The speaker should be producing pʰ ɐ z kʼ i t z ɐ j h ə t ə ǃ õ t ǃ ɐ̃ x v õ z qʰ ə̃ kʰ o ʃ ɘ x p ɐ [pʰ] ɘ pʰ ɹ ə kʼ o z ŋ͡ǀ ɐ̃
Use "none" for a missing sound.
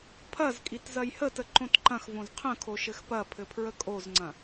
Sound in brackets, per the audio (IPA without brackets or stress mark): pʰ